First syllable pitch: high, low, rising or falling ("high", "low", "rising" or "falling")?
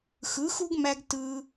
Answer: rising